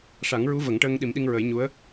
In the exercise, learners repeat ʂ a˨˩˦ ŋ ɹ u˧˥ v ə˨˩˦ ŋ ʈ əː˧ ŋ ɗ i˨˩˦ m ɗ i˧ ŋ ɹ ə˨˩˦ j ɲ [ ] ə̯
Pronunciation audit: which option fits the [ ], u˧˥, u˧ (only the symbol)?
u˧˥